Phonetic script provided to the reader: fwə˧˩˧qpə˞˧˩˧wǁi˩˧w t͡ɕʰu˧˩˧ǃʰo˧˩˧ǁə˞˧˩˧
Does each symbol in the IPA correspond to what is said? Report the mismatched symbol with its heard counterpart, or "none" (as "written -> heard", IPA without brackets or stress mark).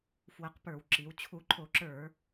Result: none